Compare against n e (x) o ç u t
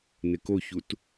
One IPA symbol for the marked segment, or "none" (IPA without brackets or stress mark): k